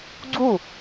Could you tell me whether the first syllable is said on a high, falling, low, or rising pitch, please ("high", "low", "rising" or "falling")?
falling